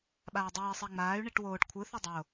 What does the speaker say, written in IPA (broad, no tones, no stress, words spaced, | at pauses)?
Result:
ɓaːdˤuːi̯ sˤiŋ͡maːy̯ ɳiʈwoːʈ kʷʰɯθi dˤo